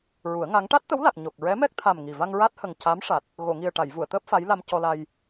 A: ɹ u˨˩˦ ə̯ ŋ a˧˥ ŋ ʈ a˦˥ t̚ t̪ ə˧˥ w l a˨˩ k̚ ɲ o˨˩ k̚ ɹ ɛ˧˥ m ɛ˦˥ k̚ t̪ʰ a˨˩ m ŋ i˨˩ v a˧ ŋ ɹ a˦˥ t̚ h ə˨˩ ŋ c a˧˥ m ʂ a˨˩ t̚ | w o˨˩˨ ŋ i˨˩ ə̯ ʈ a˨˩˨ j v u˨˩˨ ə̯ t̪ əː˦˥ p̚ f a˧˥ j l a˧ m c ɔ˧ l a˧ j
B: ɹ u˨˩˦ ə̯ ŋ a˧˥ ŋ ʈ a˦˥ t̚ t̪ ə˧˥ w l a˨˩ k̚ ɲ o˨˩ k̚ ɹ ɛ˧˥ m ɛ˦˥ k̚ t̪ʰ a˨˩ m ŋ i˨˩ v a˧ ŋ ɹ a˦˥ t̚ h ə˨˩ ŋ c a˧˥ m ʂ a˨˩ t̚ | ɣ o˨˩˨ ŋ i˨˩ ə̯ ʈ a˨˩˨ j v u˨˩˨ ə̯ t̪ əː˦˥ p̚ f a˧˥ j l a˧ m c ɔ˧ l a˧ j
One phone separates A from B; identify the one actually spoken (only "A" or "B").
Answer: B